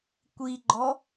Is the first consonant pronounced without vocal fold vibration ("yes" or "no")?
yes